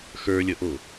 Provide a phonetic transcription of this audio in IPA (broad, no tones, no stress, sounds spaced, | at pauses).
x ə˞ lʲ ə ʔ o